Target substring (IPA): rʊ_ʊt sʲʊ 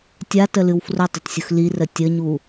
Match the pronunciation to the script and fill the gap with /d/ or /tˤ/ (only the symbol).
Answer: tˤ